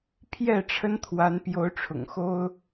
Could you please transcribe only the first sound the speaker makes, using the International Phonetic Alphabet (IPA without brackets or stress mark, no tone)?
pʰ